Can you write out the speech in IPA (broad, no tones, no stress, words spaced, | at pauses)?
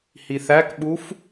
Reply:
hiθækɓuf